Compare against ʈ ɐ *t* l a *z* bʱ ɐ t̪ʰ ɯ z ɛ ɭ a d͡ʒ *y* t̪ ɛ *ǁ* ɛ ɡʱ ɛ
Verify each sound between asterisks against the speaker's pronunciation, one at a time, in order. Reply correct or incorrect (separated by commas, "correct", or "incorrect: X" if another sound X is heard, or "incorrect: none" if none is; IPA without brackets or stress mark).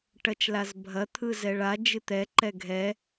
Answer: incorrect: t͡ʃ, correct, incorrect: ɨ, incorrect: ǃ